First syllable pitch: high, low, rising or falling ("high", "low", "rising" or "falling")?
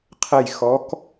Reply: falling